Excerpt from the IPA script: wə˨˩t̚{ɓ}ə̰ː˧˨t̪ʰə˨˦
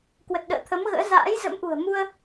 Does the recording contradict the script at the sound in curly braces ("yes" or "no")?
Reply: yes